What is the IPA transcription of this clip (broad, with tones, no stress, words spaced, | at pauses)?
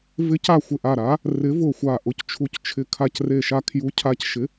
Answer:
vɪ˨˥ca˧˩ xʷɪ˧˩ʔa˧˩ɾa˨˥ | rɪ˨˥vʊ˧˩xʷa˧˩ ʔʊ˨˥ct͡ʃʰu˧˩ct͡ʃʰɪ˧˩ kʰa˧˩cre˧˩ʃa˧˩ kʰju˨˥cʰa˧˩cʃɪ˨˥